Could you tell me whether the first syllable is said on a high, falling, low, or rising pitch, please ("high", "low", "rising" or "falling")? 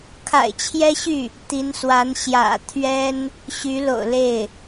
low